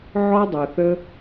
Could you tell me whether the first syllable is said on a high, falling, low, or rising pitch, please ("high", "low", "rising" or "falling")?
high